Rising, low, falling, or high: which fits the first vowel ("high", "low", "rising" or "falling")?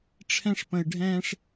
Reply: high